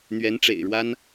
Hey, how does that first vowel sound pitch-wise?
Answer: rising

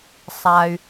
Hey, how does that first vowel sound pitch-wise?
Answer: low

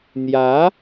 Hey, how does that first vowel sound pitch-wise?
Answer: rising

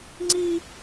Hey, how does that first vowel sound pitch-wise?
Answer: high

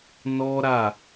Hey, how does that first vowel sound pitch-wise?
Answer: high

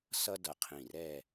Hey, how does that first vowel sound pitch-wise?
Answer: high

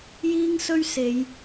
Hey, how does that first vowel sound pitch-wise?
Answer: high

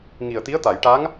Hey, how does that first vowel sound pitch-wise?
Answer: low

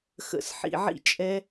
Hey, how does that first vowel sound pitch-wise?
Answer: low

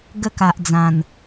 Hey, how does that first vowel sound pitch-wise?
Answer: falling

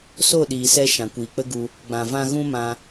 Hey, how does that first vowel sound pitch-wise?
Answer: falling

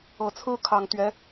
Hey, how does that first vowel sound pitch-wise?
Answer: low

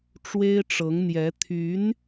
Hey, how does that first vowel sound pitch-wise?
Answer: high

